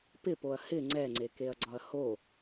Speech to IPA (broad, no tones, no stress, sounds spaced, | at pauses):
p ɪ p o ɐ̯ h ɪ ŋ͡ǀ ɛ ŋ͡ǀ e k e ɐ̯ ɡ͡ǀ ɒ ɐ̯ h o